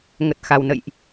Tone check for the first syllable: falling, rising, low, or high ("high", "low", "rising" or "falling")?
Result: low